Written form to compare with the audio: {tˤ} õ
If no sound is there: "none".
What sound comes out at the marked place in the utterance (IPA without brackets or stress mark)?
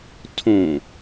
tʰ